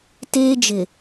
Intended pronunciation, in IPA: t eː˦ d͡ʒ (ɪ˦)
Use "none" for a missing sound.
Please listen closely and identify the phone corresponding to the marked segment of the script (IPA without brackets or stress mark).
ɪ˨